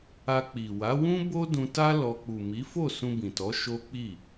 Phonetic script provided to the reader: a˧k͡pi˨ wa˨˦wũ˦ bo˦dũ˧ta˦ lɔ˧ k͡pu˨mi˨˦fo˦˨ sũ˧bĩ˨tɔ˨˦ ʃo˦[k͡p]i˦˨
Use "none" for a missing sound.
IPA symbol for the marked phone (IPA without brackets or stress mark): k͡p